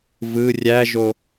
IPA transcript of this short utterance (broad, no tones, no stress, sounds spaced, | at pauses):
v ɯ rʲ æ ʒ o